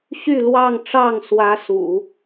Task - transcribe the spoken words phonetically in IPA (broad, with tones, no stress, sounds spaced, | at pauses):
ɕ y˥˧ l w ɑ˥˧ ŋ ʈ͡ʂ ɑ˥˩ ŋ s w ä˥ s ṵ˨˩˦